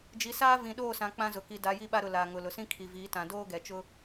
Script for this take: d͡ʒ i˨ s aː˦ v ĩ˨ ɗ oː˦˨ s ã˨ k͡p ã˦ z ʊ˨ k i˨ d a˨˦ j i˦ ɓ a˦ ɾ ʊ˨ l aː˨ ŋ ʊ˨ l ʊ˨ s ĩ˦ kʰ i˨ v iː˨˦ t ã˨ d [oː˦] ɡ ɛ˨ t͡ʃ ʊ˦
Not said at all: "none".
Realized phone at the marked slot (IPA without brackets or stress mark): oː˦